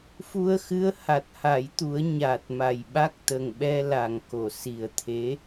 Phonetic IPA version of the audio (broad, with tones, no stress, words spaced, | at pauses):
fu˧ə̯xɨ˧˥ə̯ ha˨˩t̚ha˨˩˦jt̪u˨˩˦ə̯ ɲa˨˩t̚ma˨˩j ɓa˦˥k̚t̪ə˨˩ŋɓɛ˧ la˨˩ŋko˨˩˨ si˨˩ə̯t̪ʰe˧˥